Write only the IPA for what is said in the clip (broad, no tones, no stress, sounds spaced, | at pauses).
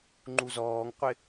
ŋ͡ǃ u z ɔː ŋ qʷ ɪ